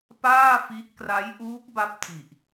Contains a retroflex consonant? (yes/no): no